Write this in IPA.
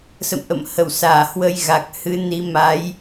s ə̰˧˨ m ʔ ə̰˧˨ m h ə˧˩ w s aː˧˩ h w ə˧ j ɣ a˨˩ k̚ h ɨ˨˦ n i˨˦ m a˨˦ j

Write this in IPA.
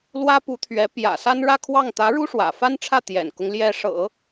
l w ä˥ p u˧˥ t̪ʰ ɥ ɛ˧˥ p j ä̰˨˩ s a˥ n ɻ ä˥˧ kʰ w ɑ˥˩ ŋ t̪ ä˧˥ ɻ u˥ ʂ w ä̰˨˩ f a˥ n ʈ͡ʂʰ ä˥˩ t̪ j ɛ̰˨˩ n k ʊ˦ ŋ l j ɛ˥ ʂ ɤ̰˨˩˦

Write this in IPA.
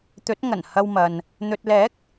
t̪ ɵ˨˥ t̚ ŋ ɐ˨˩ n h ɐ˧ w m ɐ˨ n | n̪ ɵ˨ t̚ l ɛː˨˥ k̚

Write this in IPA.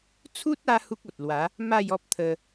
t͡sʰ u˦ t̚ a˧ h u˦ k̚ o˨ t̚ l w a˨˦ | m a˥˧ j ɔ˦ p̚ t̪ʰ ə˧

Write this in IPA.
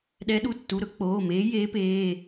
ɗ ɛ˧˥ ɗ u˩˧˩ tː u˩˧˩ ɾ ɵ˧˥ k͡p oː˩˧˩ m eː˧˥ j eː˧˥ p eː˩˧˩

